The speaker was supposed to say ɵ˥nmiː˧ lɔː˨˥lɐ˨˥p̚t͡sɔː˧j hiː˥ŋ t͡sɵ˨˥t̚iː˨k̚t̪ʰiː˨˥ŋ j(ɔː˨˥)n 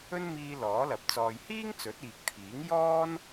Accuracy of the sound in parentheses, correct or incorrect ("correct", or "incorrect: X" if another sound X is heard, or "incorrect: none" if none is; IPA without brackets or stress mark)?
incorrect: ɔː˥